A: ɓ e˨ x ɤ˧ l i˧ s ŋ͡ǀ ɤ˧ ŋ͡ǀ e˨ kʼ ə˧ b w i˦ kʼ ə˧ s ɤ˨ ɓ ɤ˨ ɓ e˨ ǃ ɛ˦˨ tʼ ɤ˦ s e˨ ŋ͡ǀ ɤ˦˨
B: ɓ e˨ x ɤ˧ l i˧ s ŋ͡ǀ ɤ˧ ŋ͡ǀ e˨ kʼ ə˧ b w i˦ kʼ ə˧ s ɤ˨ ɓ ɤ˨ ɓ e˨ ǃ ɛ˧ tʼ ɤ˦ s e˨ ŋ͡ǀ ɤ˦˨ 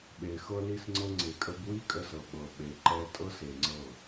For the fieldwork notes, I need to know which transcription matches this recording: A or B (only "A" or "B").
B